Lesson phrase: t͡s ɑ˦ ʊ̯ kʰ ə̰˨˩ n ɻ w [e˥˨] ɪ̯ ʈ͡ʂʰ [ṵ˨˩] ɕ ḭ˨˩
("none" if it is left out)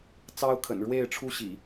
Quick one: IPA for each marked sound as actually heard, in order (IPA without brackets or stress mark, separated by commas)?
e˥˨, u˥˨